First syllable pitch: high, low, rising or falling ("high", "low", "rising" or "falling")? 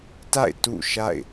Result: falling